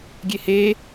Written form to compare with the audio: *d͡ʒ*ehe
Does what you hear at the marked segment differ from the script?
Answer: yes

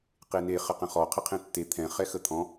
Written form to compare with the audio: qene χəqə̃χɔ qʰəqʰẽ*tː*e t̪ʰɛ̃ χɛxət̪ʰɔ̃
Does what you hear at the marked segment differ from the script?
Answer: no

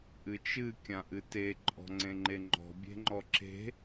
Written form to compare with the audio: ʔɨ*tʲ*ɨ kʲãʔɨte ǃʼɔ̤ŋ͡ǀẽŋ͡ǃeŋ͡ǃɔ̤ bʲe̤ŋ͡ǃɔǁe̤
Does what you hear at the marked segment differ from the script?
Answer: yes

